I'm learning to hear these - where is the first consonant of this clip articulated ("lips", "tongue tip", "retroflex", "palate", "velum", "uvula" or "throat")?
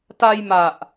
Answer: tongue tip